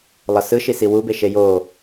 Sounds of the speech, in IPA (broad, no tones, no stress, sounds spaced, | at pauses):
lˠ ʌ s ɯ ʃ i s i w u b e ʃ e j o